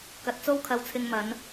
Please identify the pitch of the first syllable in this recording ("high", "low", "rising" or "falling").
low